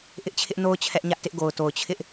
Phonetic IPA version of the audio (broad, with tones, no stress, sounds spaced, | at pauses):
ʔ ɪ˦ ʔ t͡ɕʰ ɪ˦ ʔ n o˦ ʊ̯ t͡ɕʰ ɛ˦ ʔ ɲ ä˦ ʔ t ɪ˦ ʔ ɡ o˨ ʊ̯ t o˨ ʊ̯ t͡ɕʰ ɪ˦ ʔ